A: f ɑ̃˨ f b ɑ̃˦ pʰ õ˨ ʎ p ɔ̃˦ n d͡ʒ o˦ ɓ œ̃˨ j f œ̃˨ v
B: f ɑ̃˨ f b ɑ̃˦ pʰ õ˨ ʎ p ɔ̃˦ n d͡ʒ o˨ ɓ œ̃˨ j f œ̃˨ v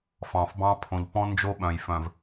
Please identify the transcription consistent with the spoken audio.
A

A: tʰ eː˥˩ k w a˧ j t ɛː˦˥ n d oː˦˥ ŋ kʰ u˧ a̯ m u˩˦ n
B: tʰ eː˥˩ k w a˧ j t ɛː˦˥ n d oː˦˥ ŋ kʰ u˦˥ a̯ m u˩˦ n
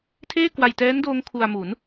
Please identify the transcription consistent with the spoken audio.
A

